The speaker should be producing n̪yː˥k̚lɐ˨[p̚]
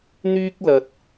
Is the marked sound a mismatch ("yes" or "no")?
yes